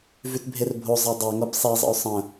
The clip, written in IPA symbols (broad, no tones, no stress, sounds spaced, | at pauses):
v ʉ t bʱ e r bʱ o zˤ ɜ dˤ a ŋ ɤ b sˤ e zˤ ə̰ ʊ̯ sˤ ə̃